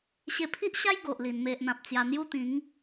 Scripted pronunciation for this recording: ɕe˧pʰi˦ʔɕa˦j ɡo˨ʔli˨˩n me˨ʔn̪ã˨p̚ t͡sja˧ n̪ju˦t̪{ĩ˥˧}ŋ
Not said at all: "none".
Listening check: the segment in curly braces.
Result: ĩ˨˦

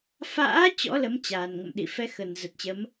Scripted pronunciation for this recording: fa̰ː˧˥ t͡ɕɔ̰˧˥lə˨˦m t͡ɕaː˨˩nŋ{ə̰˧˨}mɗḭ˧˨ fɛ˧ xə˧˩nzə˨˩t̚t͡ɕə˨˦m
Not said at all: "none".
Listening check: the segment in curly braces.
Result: ə̰˧˨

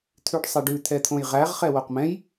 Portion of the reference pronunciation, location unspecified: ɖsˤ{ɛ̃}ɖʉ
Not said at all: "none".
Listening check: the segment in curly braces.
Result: ɛ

